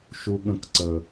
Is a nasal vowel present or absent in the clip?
present